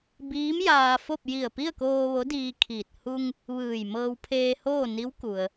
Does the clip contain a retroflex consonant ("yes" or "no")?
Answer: no